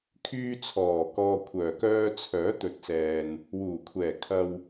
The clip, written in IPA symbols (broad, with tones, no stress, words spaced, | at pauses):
kʰyː˧t͡sʰɔː˨˩ kɔː˨kʷʰœː˨˩kœː˧ t͡sʰœː˨˥t̪ɵ˨t̚sɛː˨n | wuː˨˩kʷʰɛː˨˩kʰɐ˨w